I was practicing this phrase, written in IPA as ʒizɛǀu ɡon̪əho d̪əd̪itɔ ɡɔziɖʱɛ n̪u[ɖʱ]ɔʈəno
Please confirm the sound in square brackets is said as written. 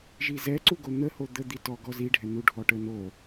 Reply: yes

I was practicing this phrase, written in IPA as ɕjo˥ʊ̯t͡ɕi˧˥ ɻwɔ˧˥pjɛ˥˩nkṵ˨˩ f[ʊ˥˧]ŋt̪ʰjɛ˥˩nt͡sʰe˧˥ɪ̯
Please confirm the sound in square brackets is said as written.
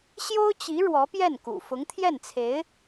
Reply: no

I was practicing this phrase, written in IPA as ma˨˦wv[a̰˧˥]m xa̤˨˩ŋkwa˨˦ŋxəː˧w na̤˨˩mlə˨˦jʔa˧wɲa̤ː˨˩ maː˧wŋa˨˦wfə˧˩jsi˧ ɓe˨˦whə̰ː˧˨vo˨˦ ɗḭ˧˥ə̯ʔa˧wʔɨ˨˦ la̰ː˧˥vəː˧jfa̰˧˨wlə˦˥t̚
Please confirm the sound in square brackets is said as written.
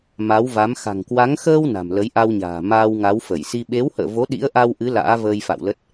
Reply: no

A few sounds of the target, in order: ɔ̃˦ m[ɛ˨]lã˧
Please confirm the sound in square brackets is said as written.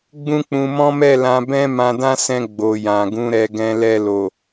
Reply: no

